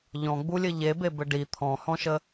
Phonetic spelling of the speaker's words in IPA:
ʎ ɔ̃ ɡ͡b u lʲ ɘ ʎ e b e b ɘ ɖ i t̪ʰ ɔ̃ h ɔ̃ ʃ ə

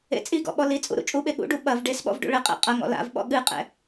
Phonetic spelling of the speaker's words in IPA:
ḛ t͡sʼ i ɡ ɔ̰ ɓ ɔ l i t͡sʼ ṵ ɾ ṵ t͡ʃʼ u ɓ e ɠ ṵ ɖ u ɓ ɐ v ɖ e s ɓ ɔ̰ v ɖ ṵ ɭ ɘ qʼ ḛ qʼ ɐ ŋ ɔ̰ l a̰ v ɓ ɔ̰ ɠ ɨ qʼ ɛ̰

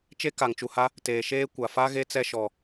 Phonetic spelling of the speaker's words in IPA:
t͡ʃ e˦ k a˨ ŋ t͡ʃ u˨ h a˦ | t eː˨ ʃ eː˦ kʷ a˨ f a˦ ɣ e˦ t͡s ɛ˦ ʃ ɔ˨

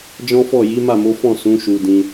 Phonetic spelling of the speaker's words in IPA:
d͡ʒ ɔ̃˦ f ɔ˦˨ j i˨˦ m a˦˨ m o˨˦ f ɔ̃˦˨ s ũ˨˦ ʃ u˧ d ĩ˧

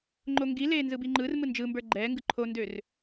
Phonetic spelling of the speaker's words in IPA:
ŋ͡ǃ o ŋ ɡ i l eː n z ɯ b i ŋ͡ǃ ɯ r m ɯ n d͡ʒ ɯ m b ə˞ ɡ͡ǃ ɛː ŋ ɡ ɯ ǃʰ o n d ø r

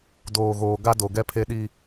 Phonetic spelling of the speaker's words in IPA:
d oː˨ ɣ oː˨ ɡ a˦ d o˨ ɡ ɛ˦ pʰ e˦ ɗ i˦

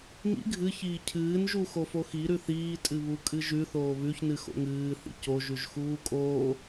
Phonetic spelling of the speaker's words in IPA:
ŋ ḭ ɡʱ ɨ ç iː cʰ ɨː n ʒ u x o f o x i ɾ ʉ θ iː tʼ ɨ β u kʼ ɨ ʒ ʉ θ oː β ʉ ç n ɨ x o̰ ŋ ɨː θ ḭ c o ʒ ʉ ʒ x uː kʼ oː

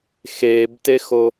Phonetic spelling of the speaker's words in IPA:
x eː b t e x o

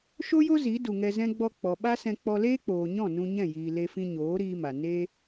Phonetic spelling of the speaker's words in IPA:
ʃ o˦ j o˦ z i˨˦ d u˨ ŋ ɛ˧ z ɛ̃˦ ɡ͡b ɔ˧ k͡p ɔ˨ ɓ a˦ s ɛ̃˧ k͡p ɔ˧ l eː˦ k͡p oː˨ ɲ ɔ̃˦˨ n ũ˧ ɲ ɛ̃˦˨ j iː˨ l e˧ f ĩ˧ ɲ oː˨˦ ɾ iː˦ m a˨ n e˦

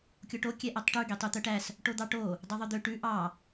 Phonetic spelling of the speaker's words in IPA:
kʲ o ʈ o kʲ ɛ ʔ æ tˤ ʈ ʉ ɡ e tˤ y t̪ œ ʈ æ s | ʈ o d̪ ɑ ʈ o | dˤ ø ðˤ œ d̪ ø ʈ ʉ ʔ ɑ

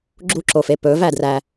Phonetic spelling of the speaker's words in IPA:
ɡ͡ǁ u ǁ o f e p ɵ v æ d r æ

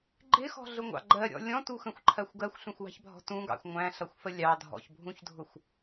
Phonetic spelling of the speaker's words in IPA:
ɡ͡ǃ ɪ x ɔ̤ ɮ ʊ ŋʷ ɑ̰ ɡ͡ǃ ɜ ɾʲ ɔ̰ lʲ ɔ̃ t u x ə̃ xʷ ǃʰ ɜ xʷ ɡ ɜ xʷ ɬ ũ xʷ w ɑ̤ ç bʱ ɔ̤ t ũ ɡ ɑ̰ xʷ ŋʷ æ̃ ɬ ʌ xʷ f ə lʲ ɑ dʱ ɔ̰ ç bʱ ũ ç dʱ ʊ xʷ

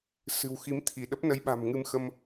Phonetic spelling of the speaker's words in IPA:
s ɨ̤˨˩ w x i˨˦ m t̪ʰ i˧˩ ɗ ə˦˥ p̚ n ə˨˦ j ɓ a̤˨˩ m ŋ ɨ˧ m x ə˧ m

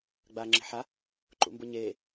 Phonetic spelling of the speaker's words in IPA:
ɡ͡b aː ŋ͡ǁ e̤ ħ a | ǃ ṵ m b ʊ ɲ eː

